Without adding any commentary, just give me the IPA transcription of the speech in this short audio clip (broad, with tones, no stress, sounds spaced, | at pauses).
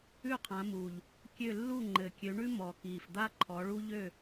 ʉ˥˨ qʰ ã˨˦ m uː˨˩ ʎ | kʲ ø˥˨ lː u˥˨ ŋ͡ǃ ɘ˨˩ kʲ ø˨˦ ɳ ʉ˥ m ɔ˨˩ k iː˨˩ f d̪ a˥ ǃʰ ɔ˨˦ ɭ u˥ ʎ ø˥˨